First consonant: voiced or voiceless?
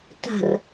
voiceless